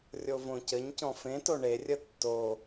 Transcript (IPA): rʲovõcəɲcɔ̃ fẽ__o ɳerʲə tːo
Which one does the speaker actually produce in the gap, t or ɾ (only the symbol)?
t